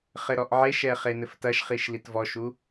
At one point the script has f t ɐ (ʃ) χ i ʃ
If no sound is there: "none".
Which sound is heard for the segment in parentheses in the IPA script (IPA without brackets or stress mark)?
ʃ